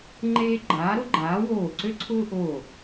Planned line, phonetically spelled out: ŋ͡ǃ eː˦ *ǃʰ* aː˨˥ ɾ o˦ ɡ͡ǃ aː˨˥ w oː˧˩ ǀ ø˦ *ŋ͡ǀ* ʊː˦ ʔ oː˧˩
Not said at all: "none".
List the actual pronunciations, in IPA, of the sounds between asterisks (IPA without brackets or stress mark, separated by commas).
ɡ͡ǃ, ǀʰ